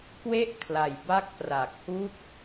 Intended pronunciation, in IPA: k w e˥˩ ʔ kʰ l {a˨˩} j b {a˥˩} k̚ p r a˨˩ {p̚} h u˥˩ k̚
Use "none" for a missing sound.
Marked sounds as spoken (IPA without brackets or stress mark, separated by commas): a˨˩, a˦˥, k̚